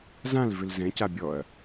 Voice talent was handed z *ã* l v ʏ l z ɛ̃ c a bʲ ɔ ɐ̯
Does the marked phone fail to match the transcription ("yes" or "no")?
no